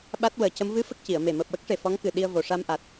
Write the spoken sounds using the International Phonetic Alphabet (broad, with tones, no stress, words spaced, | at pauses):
ɓa˦˥t̚wəː˨˩˦cə˧˥m vɨ˧˥ fə˦˥k̚ci˨˩˨ə̯me˨˩ məː˨˩p̚wə˦˥k̚ʂe˨˩ fɔ˧˥ŋkɨ˨˩ɗi˧ə̯ vo˨˩ʂa˧mʔa˨˩t̚